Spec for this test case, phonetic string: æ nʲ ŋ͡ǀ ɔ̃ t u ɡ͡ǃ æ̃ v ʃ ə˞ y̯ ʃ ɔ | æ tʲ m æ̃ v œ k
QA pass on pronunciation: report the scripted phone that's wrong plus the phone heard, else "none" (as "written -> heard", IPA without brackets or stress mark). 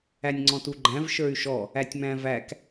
œ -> æ